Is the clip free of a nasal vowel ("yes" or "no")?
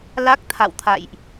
yes